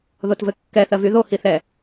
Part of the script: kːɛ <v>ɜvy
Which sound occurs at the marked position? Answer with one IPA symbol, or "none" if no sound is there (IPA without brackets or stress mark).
θ